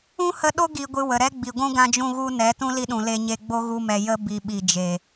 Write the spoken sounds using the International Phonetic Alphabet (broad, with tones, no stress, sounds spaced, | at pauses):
ũ˦ h ə˧ ɗ o˦ ɡ i˧ ɡʷ ɨ˧ w ə˨ ɾ ɛ˦ ɡ͡b i˨ ɡʷ ũ˦ ɡ ã˧ d͡ʒ ũ˧ ɣ u˧ n ɛ˨˦ t ũ˦ l i˧ ɗ ũ˨ l e˧ ɲ e˧ ɡ͡b o˦ ɣ u˧ m ɛ˨ j ə˦ b i˨ ɓ i˨ d͡ʒ e˨